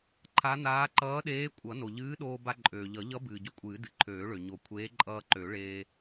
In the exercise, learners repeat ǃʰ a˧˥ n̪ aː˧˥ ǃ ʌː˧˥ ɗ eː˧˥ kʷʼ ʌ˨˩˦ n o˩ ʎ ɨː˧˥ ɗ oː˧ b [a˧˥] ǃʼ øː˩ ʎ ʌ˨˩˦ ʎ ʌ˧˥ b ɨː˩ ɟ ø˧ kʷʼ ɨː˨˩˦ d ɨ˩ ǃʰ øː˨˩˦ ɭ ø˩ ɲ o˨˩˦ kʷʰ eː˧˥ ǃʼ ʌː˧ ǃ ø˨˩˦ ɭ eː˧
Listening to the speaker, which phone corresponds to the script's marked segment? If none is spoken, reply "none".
a˧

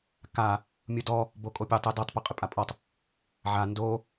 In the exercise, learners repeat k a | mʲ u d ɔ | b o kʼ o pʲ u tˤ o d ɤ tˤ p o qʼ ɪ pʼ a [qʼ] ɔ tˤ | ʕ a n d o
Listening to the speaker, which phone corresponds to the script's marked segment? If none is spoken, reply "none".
pʼ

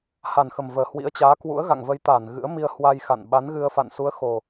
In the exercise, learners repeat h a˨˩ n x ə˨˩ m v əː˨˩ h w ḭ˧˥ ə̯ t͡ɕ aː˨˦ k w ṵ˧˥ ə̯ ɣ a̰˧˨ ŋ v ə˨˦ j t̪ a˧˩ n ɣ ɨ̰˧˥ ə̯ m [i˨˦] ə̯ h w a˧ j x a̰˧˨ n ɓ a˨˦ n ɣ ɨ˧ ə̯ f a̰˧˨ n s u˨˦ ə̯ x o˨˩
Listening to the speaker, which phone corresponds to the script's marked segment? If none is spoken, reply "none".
i˧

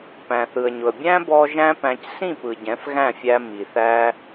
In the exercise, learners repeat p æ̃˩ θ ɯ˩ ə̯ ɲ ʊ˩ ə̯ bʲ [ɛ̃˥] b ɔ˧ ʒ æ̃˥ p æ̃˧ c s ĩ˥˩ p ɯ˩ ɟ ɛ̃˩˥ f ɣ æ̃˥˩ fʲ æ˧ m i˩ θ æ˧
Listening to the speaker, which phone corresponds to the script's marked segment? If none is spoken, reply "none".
æ̃˥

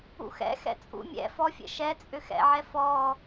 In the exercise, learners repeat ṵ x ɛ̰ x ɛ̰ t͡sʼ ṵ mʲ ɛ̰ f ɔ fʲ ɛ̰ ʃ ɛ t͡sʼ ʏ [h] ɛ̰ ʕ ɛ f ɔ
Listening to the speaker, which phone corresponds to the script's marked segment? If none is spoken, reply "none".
x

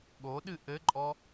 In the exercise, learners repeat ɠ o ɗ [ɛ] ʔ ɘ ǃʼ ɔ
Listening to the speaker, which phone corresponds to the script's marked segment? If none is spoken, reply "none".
ɨ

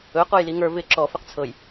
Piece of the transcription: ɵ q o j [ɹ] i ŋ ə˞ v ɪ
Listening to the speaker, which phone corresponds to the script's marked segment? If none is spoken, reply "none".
l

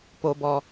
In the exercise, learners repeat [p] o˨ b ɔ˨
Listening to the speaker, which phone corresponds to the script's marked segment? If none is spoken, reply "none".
p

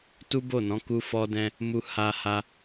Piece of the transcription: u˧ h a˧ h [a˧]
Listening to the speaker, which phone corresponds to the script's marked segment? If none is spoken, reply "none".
a˧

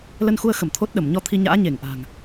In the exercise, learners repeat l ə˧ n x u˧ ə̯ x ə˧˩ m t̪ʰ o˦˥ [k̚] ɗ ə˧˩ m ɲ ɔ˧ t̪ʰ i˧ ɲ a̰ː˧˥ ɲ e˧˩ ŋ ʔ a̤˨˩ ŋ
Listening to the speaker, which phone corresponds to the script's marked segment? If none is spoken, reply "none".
t̚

